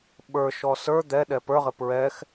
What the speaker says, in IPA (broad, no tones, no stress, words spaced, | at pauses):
ɓə˞ʃɔ sə˞ d̪ɛ ɗɛpə˞ʁɪ pɹɛx